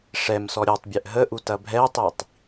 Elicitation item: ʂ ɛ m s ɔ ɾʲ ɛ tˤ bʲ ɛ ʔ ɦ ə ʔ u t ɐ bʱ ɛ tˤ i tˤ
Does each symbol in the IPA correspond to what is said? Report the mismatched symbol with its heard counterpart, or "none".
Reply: none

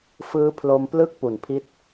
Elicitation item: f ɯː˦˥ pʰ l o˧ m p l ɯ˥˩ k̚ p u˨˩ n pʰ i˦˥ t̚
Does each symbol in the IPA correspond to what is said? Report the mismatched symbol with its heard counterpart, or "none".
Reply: none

